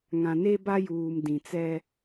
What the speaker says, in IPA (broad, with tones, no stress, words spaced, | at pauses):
ŋã˨ne˦ba˦juː˨m dĩ˨t͡sɛ˦